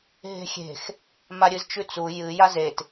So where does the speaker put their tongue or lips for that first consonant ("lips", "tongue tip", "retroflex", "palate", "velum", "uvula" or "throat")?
throat